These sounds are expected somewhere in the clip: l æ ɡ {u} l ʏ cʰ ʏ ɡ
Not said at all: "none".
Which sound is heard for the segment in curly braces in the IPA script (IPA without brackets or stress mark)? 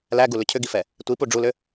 u